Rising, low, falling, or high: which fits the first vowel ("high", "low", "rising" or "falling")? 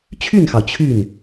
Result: falling